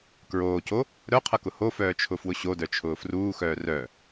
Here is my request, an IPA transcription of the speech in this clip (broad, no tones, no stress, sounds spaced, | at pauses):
k ɹ oː c o | ɾ œ qʰ ʌ k ʊ h o f œː t͡ʃʰ ʊ f w ʊ ɕ o d œ t͡ʃʰ ʊː f r uː x œː r œ